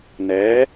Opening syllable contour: rising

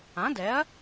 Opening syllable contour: rising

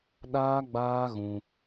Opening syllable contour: high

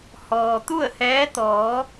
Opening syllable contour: low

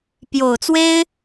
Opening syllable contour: low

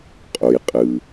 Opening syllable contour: low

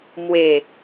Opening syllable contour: low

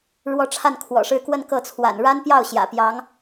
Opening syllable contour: falling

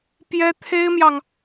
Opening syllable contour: high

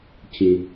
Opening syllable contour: low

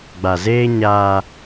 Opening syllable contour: low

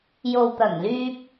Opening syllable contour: low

